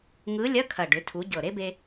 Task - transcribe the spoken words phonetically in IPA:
ŋɯ˧˥lʲɐ˧˥˧kʰɐ˨˩ ɖʏ˩˧tʰu˩˧ ɟɤ˨˩ɾe˥be˧

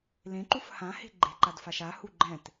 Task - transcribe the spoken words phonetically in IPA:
lẽǃuf hãhe̤ ɡ͡ǃe̤ǃadfaʃ ahu ɡ͡ǃɛ̃t

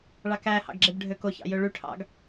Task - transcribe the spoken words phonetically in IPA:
ɭɑkæhɑ̰ɡ ɡ͡ǁebɖʱøkoçɑ̰ jøɭyʈʰɑ̰ɡ

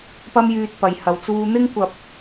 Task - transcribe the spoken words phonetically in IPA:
pɐ˥mjyː˧t̚pɐ˨j hɐ˨wt͡suː˧ n̪ɪ˥ŋkʷɐ˧p̚

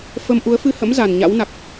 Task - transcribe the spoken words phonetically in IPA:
fə˧m ʔu˨˦ə̯fɨ˧hə̰˧˥m za˨˩nɲa̰˧˥wna˨˩k̚

